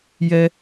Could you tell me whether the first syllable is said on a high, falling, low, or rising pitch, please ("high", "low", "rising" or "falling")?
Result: high